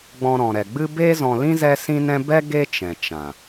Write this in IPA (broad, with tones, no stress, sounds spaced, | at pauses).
ɡ͡b ɔ̃˧ ɾ ɔ̃˨ ɾ ɛ˨ ɡ͡b ɨ˦ b eː˦ z ɔ̃˧ l ĩ˦ z ɛ˦ s ĩ˦ n ɛ̃˦ b ɛ˦ ɡ e˦ t͡ʃ ɛ̃˨ t͡ʃ ã˨